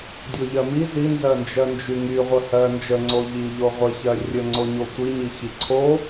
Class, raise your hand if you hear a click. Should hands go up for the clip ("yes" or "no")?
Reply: yes